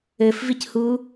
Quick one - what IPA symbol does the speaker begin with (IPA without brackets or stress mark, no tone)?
ɘ